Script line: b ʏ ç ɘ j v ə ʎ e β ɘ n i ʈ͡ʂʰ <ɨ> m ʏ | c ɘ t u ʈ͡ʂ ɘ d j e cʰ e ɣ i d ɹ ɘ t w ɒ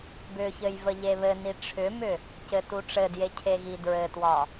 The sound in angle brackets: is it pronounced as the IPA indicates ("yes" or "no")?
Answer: no